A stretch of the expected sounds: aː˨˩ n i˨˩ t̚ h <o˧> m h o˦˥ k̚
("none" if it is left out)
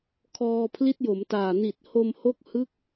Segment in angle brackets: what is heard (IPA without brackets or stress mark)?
o˧